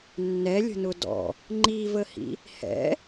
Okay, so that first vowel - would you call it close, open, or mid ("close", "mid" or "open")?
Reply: mid